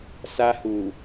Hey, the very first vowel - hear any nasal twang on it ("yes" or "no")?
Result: no